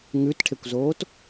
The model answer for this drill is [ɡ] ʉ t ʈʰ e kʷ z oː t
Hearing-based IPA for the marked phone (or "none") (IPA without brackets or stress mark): ŋ